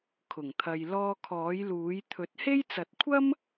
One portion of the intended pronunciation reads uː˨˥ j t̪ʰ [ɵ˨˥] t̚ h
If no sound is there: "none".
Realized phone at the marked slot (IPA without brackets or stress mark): ɵ˨˥